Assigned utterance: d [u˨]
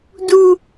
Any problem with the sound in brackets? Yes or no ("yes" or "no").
no